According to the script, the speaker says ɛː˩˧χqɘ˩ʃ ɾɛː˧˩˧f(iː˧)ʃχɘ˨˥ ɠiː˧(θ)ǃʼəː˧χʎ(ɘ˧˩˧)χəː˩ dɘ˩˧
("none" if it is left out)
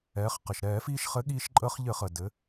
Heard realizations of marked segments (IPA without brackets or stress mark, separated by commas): iː˧, ʃ, ɘ˧˩˧